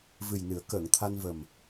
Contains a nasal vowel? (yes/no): no